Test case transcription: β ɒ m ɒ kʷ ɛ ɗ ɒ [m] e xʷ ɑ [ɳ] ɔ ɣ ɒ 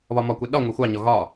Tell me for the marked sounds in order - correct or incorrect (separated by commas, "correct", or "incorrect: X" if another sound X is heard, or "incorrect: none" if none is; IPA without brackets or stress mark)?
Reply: incorrect: ŋʷ, incorrect: ɲ